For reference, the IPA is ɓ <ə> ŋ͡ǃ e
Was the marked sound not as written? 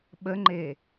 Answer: no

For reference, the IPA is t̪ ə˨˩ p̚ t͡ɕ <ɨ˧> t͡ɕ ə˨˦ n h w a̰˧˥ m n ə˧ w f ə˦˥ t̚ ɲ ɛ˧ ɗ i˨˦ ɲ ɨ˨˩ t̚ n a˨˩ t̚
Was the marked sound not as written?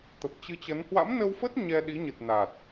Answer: no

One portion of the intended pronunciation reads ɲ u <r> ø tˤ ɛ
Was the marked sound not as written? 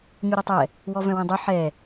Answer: yes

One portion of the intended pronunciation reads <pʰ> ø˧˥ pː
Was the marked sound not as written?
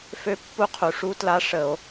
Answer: yes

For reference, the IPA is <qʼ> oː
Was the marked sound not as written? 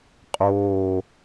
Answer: no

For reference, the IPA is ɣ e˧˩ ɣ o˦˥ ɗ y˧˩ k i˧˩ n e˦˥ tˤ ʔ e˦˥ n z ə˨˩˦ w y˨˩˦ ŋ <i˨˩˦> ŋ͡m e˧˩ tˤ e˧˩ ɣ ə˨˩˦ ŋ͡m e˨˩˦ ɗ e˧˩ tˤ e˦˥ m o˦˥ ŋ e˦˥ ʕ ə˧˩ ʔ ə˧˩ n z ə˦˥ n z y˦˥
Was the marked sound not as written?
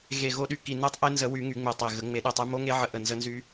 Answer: yes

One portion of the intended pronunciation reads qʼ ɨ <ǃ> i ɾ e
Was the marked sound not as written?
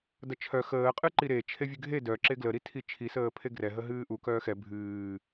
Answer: no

